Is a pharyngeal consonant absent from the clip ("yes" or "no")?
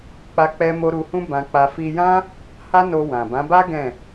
yes